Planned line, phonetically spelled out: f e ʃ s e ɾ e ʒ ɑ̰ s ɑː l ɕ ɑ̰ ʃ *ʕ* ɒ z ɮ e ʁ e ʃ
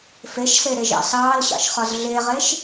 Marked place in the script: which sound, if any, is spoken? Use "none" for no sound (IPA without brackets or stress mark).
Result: χ